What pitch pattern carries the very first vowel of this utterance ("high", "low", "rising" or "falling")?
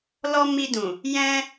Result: high